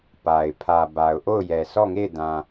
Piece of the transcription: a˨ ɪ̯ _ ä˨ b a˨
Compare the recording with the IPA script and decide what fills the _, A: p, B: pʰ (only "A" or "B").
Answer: B